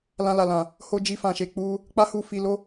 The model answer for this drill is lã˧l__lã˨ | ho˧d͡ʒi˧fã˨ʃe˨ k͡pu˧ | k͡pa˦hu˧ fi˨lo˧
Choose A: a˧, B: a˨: B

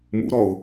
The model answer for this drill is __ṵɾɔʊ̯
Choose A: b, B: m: B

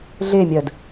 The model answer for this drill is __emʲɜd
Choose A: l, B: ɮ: B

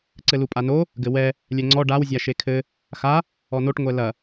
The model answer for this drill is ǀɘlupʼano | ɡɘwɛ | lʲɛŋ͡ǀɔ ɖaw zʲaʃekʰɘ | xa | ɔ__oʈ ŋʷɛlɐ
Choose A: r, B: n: B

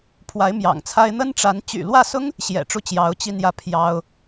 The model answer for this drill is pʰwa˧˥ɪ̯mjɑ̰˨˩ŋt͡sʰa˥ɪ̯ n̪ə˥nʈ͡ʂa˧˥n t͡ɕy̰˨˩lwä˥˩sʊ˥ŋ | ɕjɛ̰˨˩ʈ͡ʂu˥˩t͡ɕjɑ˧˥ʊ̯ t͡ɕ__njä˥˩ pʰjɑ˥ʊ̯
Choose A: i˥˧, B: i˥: A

